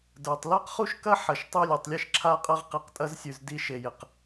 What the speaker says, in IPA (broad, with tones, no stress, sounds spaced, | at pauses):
d ə˞˩ tˤ l a˥ q χ u˥ ʃ k ɐ˥ ħ ɐ˨ ʃ tˤ ʉ˥ lʲ ɔ˨ tˤ lʲ e˥ ʃ ǁʰ a˥ qʼ ɐ˥ ʁ q i˨ q tʼ ɐ˥ z sʲ ʉ˨ z d i˦ ʃ e˨ j ɪ˩ q